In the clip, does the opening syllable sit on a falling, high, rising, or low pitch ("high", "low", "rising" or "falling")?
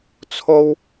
high